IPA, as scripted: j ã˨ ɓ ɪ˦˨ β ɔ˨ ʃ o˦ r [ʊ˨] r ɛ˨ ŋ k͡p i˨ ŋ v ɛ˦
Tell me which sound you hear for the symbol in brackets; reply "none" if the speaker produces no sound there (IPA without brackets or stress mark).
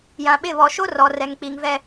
ɔ˨